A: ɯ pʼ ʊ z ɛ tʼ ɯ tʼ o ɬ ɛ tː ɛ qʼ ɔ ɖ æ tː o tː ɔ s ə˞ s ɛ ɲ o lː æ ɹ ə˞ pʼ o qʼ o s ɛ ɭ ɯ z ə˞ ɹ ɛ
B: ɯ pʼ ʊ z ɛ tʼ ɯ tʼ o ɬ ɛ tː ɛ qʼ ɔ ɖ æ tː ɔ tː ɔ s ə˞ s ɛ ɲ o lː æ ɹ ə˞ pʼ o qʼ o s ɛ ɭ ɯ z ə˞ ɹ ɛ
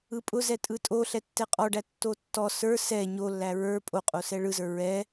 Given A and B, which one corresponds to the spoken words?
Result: A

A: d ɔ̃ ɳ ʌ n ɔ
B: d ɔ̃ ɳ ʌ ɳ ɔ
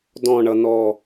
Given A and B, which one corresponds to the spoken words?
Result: A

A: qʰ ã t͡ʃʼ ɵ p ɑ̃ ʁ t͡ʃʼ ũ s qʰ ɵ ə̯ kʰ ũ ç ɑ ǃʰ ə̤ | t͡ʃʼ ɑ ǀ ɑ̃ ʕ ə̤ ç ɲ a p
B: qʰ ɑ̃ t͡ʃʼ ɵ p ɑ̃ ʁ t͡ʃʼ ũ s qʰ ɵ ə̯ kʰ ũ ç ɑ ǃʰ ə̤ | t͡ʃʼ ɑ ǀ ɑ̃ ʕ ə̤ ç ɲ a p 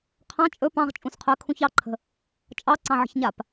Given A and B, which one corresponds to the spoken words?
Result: B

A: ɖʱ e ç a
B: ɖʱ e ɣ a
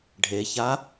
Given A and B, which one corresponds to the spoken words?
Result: A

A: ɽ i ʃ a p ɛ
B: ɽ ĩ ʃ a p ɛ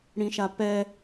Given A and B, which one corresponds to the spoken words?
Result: B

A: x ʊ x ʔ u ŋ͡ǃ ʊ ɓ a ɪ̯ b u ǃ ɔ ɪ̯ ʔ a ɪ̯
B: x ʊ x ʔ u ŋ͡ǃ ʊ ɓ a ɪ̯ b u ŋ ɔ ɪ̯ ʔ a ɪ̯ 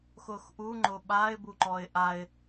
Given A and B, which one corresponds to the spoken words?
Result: A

